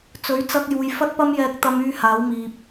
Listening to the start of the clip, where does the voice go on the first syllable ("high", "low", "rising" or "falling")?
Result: rising